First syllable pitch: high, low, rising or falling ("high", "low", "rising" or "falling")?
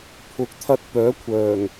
rising